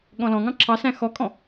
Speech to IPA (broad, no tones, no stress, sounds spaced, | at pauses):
ɠ ɔ̃ l ɔ̃ ŋ ɑ̃ ǁʰ ɑ s æ̃ x ɔ kʼ ɔ̃